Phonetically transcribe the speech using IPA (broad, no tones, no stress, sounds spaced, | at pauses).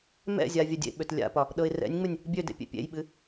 m ɛ̰ zʲ a vʲ ɛ dʲ ḛ ɓ ø t lʲ a̰ p ɒ | ɗ ɤ ɪ̯ r ɛ̰ nʲ ŋ͡m ɨ nʲ | bʲ ø d ḛ pʲ ḛ pʲ ḛ j ɓ ɨ